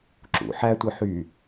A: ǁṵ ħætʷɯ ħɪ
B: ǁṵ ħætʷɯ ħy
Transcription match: B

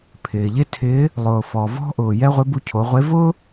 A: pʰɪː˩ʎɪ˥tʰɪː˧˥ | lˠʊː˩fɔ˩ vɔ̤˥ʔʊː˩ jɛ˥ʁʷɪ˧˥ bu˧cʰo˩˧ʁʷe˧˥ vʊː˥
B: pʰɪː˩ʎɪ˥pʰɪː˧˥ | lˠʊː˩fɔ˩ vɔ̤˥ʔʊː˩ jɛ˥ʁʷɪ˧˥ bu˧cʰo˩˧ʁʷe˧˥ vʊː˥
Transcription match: A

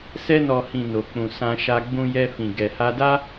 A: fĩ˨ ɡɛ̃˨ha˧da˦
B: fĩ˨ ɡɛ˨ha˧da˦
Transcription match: B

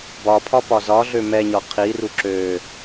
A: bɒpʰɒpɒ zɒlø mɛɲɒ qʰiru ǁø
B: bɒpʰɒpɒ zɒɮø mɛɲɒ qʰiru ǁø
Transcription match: B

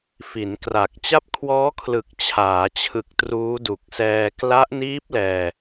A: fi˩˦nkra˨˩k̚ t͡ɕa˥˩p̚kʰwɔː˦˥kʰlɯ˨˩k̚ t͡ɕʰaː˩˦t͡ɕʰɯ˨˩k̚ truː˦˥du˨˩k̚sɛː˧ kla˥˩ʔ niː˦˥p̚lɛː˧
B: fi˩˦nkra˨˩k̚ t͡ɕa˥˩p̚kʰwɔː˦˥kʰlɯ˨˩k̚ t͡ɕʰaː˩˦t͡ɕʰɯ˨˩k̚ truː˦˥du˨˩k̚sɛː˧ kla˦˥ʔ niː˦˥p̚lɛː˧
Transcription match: B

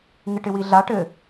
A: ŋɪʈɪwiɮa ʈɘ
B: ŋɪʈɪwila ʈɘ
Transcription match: A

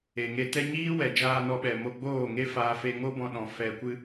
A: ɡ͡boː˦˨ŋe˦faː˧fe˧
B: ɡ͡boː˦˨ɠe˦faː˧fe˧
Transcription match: A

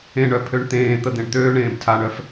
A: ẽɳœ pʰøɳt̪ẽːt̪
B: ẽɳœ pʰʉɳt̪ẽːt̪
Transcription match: A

